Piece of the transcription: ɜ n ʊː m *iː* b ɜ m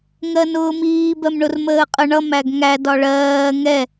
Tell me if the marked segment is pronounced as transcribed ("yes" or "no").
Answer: yes